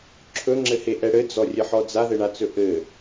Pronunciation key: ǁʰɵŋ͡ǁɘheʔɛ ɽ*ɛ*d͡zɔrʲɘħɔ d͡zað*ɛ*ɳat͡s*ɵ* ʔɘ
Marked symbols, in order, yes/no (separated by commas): no, no, yes